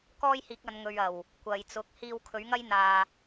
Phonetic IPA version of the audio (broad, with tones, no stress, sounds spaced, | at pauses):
k ɔː˥ j h iː˨˥ k̚ ɐ˨˧ n ŋ ɵ˨ ɥ ɐ˨˩ w | kʷ ɐ˨ j t͡s ʊ˨˥ k̚ h iː˧ w kʰ ɵ˨˥ ɥ ŋ ɐ˥ j n̪ aː˧